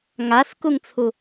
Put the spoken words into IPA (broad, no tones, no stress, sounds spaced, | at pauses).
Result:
ŋ a s k u ŋ t͡sʰ u